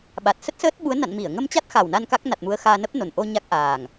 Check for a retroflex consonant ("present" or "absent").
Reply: absent